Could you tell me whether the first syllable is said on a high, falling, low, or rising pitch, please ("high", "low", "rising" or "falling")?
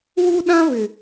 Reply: high